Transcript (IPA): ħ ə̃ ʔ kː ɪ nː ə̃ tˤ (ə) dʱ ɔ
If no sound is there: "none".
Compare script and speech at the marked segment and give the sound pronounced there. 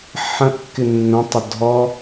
ə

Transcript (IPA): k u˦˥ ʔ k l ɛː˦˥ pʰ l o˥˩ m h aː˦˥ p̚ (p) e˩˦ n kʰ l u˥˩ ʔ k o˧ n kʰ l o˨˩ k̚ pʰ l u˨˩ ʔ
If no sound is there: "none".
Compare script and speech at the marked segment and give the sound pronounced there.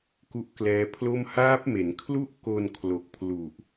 m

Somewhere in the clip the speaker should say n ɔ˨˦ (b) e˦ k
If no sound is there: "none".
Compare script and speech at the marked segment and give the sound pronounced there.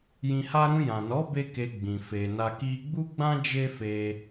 b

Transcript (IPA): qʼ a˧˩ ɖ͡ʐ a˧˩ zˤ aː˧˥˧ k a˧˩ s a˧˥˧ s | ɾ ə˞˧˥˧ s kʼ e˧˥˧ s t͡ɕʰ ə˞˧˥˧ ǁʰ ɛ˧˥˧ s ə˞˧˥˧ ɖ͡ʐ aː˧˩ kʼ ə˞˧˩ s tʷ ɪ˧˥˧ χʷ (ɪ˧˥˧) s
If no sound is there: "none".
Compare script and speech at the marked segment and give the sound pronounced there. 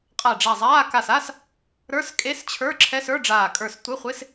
ɪ˧˥˧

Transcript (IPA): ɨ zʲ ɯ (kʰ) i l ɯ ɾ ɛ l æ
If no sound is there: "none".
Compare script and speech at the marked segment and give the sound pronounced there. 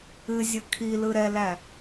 kʰ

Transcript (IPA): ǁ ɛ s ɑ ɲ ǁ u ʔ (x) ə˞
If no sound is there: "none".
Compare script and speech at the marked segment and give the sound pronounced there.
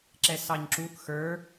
x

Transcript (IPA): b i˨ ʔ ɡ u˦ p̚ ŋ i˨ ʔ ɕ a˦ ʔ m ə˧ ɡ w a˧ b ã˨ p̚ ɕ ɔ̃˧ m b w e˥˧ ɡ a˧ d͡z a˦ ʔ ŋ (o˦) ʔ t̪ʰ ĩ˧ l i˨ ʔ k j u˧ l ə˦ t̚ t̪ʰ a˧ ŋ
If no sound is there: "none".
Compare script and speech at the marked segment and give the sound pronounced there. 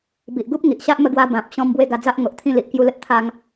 o˨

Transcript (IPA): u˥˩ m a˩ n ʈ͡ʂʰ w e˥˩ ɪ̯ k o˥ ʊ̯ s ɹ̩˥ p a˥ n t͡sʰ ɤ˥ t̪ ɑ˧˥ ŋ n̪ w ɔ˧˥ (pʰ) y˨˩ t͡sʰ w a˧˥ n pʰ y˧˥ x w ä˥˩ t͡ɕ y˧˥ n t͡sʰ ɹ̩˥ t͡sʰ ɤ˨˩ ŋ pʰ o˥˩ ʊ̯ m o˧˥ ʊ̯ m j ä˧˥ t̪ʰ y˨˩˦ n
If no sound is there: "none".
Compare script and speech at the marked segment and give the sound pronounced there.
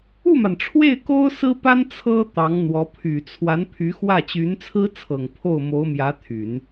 pʰ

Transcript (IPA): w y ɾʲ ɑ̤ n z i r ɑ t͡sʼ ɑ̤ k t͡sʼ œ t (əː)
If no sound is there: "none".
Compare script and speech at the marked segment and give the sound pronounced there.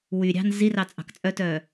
œː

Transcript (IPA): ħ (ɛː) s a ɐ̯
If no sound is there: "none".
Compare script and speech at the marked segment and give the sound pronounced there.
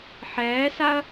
ɛː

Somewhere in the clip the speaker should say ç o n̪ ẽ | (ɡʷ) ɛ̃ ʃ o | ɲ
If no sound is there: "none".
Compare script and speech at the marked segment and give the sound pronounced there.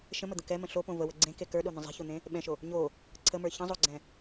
ɓ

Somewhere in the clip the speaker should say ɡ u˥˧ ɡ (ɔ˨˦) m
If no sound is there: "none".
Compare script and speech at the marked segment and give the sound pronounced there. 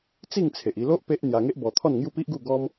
ɔ˦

